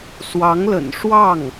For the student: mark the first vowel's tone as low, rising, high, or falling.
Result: rising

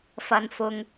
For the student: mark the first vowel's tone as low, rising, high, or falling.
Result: low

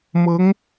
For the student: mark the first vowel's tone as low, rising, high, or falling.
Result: rising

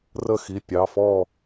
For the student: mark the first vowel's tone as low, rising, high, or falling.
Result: falling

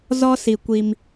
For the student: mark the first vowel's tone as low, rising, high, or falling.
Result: high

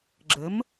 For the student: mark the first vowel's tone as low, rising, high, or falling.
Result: rising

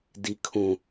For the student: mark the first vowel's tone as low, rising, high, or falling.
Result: high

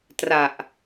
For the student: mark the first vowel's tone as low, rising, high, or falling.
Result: low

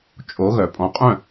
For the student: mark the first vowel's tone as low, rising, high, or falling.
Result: rising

